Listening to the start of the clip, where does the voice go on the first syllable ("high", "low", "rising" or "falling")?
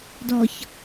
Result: low